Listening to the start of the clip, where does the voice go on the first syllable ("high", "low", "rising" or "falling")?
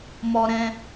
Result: high